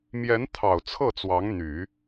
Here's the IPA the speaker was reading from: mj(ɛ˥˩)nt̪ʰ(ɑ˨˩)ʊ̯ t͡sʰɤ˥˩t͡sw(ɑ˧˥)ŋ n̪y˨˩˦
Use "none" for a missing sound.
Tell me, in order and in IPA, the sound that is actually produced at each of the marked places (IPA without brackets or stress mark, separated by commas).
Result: ɛ˧˥, ɑ˨˩, ɑ˧˥